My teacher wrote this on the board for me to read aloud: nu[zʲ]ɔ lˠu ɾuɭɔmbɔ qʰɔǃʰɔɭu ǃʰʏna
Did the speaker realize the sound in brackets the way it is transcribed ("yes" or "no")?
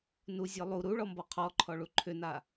yes